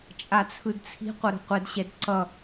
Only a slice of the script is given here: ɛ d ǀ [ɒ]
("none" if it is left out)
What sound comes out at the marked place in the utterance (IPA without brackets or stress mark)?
ʌ